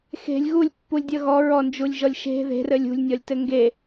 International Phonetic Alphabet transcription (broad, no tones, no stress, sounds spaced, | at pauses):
x e̤ lʲ ɣ u lʲ pː u lʲ dʲ ʌ ɣ ɔ ɹ ɔ n d͡ʒ u lʲ ʒ ɔ lʲ ʃ e̤ ð e̤ r ɘ lʲ ṳ lʲ nʲ ɔ lʲ t ɘ ŋ ɡ e